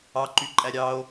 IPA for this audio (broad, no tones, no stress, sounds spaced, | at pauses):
ɑ ǃ y ǃʼ æ ɾʲ ɑ o̯